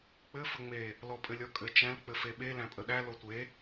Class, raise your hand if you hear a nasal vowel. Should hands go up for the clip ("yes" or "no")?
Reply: yes